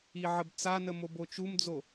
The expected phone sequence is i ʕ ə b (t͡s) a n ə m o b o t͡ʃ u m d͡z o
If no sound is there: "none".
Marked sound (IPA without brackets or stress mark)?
t͡s